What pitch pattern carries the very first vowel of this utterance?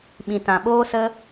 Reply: low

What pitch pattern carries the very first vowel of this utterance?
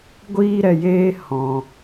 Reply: high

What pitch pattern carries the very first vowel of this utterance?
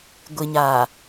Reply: low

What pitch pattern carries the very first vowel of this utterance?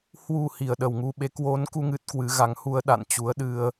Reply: low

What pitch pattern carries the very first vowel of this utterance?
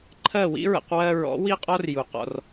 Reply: falling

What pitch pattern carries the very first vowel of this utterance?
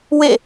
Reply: falling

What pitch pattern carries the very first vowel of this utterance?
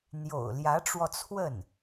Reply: low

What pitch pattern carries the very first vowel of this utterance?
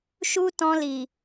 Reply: high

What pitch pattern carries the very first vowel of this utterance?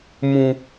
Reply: low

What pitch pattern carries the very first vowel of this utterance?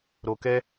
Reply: low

